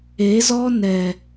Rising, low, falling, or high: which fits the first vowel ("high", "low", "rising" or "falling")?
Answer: rising